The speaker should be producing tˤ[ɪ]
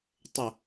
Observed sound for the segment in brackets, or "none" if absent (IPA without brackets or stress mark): ɪ